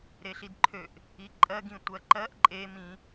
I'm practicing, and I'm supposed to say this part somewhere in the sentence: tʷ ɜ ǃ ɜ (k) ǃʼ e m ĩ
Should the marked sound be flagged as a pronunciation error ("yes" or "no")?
yes